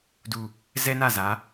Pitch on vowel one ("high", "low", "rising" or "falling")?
low